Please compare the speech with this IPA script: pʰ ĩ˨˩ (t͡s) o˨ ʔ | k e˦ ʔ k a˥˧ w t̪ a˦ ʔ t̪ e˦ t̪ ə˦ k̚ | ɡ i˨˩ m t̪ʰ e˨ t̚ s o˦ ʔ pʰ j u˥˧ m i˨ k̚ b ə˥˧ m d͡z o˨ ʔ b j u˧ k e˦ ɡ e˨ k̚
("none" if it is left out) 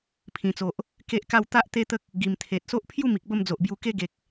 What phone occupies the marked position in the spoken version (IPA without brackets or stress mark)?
t͡s